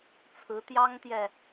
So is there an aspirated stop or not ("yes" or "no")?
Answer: yes